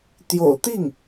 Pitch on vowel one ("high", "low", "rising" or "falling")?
low